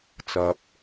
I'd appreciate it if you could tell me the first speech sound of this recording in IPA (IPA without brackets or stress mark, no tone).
t͡s